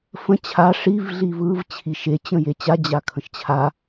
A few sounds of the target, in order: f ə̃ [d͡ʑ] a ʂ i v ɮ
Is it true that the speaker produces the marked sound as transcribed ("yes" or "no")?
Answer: no